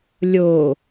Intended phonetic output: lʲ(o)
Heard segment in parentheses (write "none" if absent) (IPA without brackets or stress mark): o